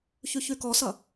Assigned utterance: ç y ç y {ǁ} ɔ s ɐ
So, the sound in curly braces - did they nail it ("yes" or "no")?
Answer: no